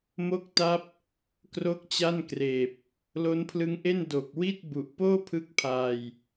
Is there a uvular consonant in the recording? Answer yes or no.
no